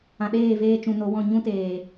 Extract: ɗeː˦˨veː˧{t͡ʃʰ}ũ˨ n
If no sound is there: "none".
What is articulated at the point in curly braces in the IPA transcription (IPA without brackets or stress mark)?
t͡ʃ